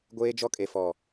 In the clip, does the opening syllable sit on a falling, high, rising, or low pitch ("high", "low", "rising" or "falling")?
high